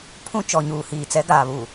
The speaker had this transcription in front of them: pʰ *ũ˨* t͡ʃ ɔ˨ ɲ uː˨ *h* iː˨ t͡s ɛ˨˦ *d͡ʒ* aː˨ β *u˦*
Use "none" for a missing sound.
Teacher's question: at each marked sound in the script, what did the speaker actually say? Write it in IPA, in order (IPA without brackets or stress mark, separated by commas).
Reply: ũ˦, h, ɡ, u˨